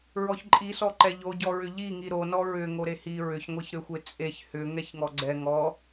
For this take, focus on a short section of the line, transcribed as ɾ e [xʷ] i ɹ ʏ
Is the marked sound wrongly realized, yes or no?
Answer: yes